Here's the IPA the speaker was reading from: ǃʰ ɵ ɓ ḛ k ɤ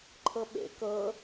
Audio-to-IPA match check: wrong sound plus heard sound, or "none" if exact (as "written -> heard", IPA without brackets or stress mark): ɵ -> ɤ